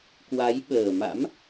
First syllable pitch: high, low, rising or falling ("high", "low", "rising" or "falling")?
rising